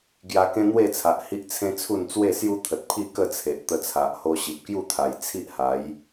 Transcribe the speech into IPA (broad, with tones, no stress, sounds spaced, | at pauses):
ɡ j a˧ k ẽ˦ n̪ w e˥˧ t͡sʰ a˨ ʔ h i˦ ʔ t͡sʰ ẽ˦ t͡sʰ u˥˧ n t͡s w e˥˧ s j u˦ t̪ʰ ə˨ t̚ pʰ i˥˧ k ə˥˧ t͡sʰ e˨ ʔ t̪ ə˧ t͡sʰ a˨ ʔ h o˧ ɕ i˨ p̚ k j u˥˧ t̪ʰ a˨˩ j t͡sʰ i˦ ʔ h a˨˦ j